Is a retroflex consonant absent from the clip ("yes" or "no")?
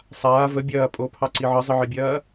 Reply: yes